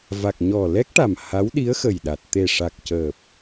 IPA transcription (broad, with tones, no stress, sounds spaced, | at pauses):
v a˨˩ k̚ ɲ ɔ˨˩ l ɛ˦˥ k̚ ʈ a˨˩ m h a˧˥ w ɗ i˧˥ ə̯ x ə˨˩ j ɗ a˨˩ t̚ t̪ e˨˩ ʂ a˨˩ k̚ c əː˨˩ p̚